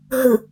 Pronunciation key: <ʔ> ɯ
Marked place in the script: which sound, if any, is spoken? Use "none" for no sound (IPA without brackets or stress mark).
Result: ɦ